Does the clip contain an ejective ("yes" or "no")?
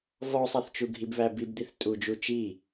yes